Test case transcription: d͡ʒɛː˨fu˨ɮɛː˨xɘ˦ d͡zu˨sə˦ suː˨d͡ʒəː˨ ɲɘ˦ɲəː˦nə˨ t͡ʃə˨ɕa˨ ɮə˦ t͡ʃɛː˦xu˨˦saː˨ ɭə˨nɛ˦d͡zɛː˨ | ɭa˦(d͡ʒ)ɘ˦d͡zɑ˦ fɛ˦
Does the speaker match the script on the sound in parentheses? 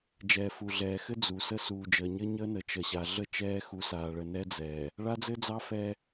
no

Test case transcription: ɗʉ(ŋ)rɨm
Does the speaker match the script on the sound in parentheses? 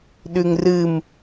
yes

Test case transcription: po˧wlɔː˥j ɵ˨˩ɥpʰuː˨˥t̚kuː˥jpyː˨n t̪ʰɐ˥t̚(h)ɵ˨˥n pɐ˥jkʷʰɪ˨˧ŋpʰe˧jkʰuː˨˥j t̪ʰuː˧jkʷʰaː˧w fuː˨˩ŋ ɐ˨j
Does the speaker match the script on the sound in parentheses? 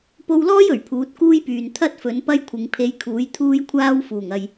no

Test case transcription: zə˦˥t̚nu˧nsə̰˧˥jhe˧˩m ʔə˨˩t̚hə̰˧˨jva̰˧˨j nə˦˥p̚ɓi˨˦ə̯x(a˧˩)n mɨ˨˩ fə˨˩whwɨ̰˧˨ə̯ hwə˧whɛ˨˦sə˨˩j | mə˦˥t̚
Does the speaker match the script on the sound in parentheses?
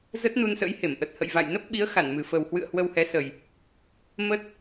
yes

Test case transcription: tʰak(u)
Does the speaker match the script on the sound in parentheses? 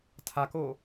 no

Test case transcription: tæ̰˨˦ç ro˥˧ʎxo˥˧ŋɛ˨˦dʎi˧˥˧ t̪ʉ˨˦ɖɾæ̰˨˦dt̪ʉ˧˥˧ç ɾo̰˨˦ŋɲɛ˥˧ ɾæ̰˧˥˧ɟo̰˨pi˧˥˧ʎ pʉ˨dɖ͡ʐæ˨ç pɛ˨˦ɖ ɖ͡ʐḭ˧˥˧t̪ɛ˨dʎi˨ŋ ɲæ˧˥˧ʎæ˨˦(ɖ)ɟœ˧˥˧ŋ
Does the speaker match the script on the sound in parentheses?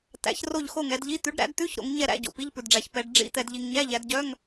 no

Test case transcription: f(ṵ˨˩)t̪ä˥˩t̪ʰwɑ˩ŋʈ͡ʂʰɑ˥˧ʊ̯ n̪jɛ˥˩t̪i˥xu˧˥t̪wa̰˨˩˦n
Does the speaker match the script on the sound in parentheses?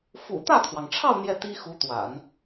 yes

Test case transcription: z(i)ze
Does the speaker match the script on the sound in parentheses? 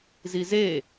yes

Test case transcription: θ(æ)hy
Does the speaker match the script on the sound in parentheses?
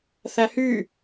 yes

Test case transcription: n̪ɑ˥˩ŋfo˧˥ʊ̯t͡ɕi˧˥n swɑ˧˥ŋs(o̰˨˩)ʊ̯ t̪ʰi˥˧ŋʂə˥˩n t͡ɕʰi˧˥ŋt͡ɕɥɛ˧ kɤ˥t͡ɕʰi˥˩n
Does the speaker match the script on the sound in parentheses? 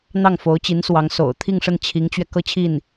yes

